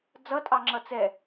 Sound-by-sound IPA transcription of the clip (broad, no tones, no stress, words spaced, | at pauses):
d͡zʌtʼɑŋ͡ǁʌ t͡sɛ